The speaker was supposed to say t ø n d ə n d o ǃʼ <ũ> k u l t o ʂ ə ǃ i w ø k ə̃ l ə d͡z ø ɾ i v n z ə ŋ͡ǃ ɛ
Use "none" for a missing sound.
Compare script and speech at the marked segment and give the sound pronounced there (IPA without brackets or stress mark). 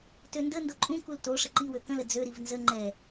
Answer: ũ